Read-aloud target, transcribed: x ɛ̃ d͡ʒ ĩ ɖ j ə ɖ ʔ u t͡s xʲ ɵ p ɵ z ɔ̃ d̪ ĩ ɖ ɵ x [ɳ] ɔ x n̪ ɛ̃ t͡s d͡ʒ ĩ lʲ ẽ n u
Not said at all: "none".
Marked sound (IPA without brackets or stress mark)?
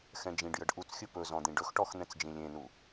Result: ʈ